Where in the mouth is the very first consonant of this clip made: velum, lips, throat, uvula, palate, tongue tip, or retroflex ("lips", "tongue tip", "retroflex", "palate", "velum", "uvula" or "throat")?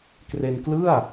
velum